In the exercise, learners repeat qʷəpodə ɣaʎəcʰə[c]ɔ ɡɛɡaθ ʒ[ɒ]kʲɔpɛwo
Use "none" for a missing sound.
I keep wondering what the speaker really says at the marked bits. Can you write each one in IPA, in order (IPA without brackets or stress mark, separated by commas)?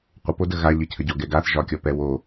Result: ɟ, ɒ